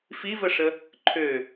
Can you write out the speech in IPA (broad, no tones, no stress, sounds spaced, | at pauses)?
f i v ə ʂ ə | ǃʰ ø